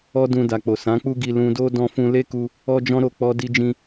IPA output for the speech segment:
ɔ˧ dũ˧da˨k͡po˨ sã˨˦k͡pu˦ɡi˧ lũ˧do˦ dɔ̃˧fũ˧le˦ku˧ | ɔ˦d͡ʒɔ̃˦ɾo˦˨ k͡pɔ˧di˧d͡ʒĩ˧

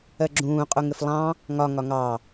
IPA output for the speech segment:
ɜɡ͡ǁũː qʼuŋɪflˠɑ̃ | ŋɒ ŋɒŋɑ

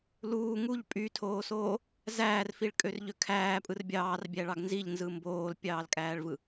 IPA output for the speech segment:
luː ŋuʎ pʼytʰoːsoː | zæːrfiɭkʼørʎø kʰæːpʼɯr bʲɑːrbʲæɭɑɡ nziʎnzɯ mboːlpʲɑːlkʼæːɭvɯ

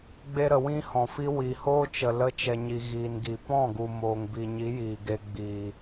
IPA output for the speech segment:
ɡ͡be˧ɾə˨ wĩ˧ hɔ̃˨fi˦ wi˨hoː˦ t͡ʃə˨lə˧t͡ʃɛ˨ɲi˨ ɣiː˨nɡi˨ pɔ̃˦˨ɡu˨ moː˨ŋbi˨ɲi˨˦ jiː˨ɡe˧ ɡ͡biː˨

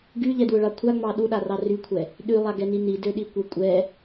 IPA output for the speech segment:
ɡyʎɛdwʊɭɑ kʷʰaŋ͡mɑ ɗuɗarɑ rykʷʰɛ | ɗylˠaɡɛni nidøɗikʷe kʷʼɛ

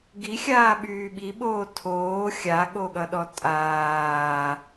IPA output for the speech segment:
ɡixʲaːɓyː ɓiɓoː tʰoː xʲaɠoɠʌɗɔ tʼaː

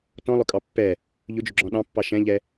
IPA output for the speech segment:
tɔ̃lˠʊkʼɑ pːɛ | ʎʊd͡ʒʊɡ͡ǁɔ̃ ɗɑ̃pːɑ ʃɛ̃ʎɛ

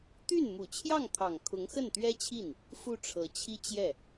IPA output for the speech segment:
t̪y˥˩n mu˨˩t͡ɕʰjɑ˥˩ŋt̪ʰɑ˨˩ŋ kʰʊ˧˥ŋxə˥˩nt̪ɥɛ˥t͡ɕʰi˥˩n | fu˥˩ʈ͡ʂʰɤ˧˥t͡ɕʰi˥ t͡ɕjɛ˥˩

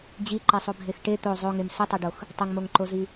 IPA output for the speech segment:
d͡ʑiǃesˤobʱex ʈe t̪o zˤoŋem sɪtˤeɖox | tˤɪŋmoŋǃozi

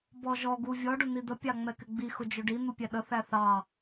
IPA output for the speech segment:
bɔʒɔ ɡuvʲɔ ɖʊn̪id̪ə pʲɑŋ͡mɛkɪɡ͡bi xʊd͡ʒʊɖi n̪upʲæɗə θæθɑ

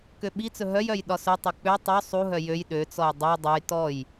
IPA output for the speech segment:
køɓit͡sɵ ɦœj œjɗɒsɵtˤœ k͡pø tˤø sˤuɦœ jøj ɗøt͡sɔj dˤø dˤɵj tɔj

